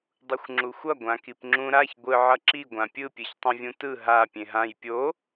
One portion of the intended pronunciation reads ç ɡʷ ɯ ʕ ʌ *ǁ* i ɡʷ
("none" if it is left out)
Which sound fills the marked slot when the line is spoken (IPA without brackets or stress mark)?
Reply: ǁ